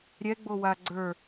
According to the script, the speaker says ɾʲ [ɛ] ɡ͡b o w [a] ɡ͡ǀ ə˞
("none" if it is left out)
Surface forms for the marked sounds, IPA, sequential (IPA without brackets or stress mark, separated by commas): ɛ, a